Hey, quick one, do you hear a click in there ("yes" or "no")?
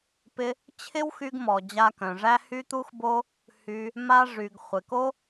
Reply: no